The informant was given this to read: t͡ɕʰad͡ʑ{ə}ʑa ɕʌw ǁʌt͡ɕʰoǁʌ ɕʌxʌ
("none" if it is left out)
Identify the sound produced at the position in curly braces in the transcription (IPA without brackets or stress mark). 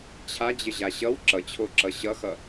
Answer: ə